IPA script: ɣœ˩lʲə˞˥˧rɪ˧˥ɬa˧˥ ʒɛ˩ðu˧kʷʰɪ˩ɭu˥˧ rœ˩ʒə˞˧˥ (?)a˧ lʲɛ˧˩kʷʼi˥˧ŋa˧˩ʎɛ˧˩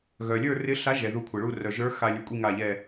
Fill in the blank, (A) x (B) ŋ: A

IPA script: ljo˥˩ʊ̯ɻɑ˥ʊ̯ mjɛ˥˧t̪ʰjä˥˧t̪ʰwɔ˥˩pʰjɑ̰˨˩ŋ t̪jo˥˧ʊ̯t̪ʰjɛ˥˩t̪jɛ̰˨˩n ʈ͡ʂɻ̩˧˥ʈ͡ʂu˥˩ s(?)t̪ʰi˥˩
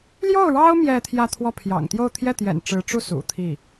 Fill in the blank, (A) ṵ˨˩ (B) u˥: A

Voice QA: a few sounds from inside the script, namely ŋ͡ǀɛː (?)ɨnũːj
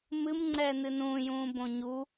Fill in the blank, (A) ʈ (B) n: B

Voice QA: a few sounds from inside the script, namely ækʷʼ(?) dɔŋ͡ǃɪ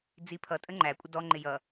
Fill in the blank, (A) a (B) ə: B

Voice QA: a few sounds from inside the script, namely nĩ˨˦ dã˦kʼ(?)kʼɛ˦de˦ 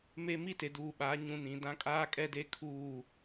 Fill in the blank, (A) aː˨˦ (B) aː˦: B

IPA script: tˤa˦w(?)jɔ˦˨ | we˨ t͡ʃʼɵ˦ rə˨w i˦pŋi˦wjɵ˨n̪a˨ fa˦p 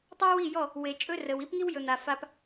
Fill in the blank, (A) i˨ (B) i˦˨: B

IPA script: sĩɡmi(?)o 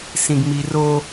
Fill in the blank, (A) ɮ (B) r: B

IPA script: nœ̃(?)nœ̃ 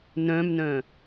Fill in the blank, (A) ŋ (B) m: B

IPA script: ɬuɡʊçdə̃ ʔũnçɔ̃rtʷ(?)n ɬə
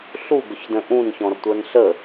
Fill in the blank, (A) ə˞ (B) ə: A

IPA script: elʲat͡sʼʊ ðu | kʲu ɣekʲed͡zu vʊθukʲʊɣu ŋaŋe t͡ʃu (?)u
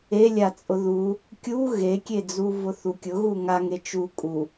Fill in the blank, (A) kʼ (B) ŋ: A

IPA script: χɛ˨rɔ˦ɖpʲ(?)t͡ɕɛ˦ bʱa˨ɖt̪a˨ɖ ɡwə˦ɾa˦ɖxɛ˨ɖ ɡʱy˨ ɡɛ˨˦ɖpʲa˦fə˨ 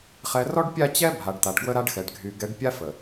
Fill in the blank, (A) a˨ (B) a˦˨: B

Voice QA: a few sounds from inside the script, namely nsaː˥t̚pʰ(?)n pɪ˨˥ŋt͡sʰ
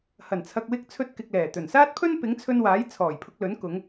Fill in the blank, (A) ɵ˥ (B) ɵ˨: A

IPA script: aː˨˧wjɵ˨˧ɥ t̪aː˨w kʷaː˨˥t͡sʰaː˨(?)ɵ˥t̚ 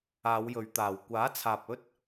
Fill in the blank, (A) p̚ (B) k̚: A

